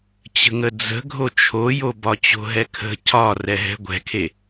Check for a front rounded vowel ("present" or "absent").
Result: absent